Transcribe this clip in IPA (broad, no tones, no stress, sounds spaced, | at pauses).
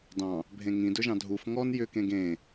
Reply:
d ɑ̃ | bʱ ẽ ŋ ĩ d ɵ ʒ ɑ̃ dʱ u f ŋ ɔ n j ʏ k ẽ ɡ ẽ